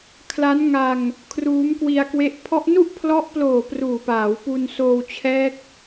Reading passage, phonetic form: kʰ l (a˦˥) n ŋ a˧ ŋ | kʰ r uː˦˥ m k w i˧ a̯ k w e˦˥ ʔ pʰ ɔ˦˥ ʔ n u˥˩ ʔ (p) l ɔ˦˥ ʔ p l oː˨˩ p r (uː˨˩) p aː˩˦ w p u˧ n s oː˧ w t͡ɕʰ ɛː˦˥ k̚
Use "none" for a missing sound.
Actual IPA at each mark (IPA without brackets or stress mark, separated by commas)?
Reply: a˦˥, pʰ, uː˨˩